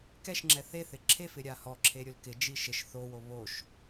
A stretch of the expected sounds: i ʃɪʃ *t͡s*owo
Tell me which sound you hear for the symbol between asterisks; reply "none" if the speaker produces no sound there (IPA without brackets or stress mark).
θ